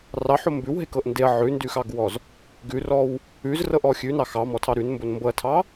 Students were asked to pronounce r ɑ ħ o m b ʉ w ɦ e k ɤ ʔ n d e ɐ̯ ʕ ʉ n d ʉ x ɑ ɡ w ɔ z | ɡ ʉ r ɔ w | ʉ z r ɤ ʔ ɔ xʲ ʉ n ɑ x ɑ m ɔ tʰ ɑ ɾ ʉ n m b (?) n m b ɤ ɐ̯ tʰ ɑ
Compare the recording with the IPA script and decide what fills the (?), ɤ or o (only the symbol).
o